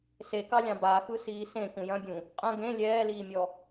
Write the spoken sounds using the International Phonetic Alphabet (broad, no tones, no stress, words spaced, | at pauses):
sekɑlʲɑ̃ baxɯ siːsẽ kũjɐ̃bʲũ | qʼɐ̃ ɡẽ lʲɛːliːmʲɔ